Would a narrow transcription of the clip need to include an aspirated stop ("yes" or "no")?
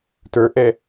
no